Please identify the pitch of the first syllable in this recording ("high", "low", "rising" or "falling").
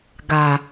low